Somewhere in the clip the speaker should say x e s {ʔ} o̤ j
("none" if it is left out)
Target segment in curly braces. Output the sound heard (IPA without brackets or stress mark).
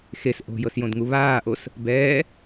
ʔ